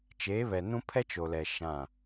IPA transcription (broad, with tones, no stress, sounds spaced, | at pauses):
t͡ʃ eː˨˦ β ɛ˨ n ũ˦ pʰ ɛ˦ t͡ʃ o˨ l ɛ˨ ʃ ã˦˨